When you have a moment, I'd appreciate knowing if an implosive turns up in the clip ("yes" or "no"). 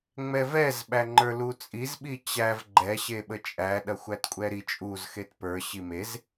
yes